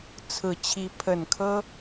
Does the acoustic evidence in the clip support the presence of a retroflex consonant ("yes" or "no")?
no